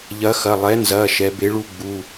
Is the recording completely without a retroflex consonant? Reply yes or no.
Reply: no